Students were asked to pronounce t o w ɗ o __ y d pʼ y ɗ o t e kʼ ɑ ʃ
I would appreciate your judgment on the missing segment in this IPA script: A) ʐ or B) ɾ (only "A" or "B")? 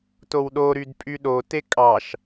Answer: B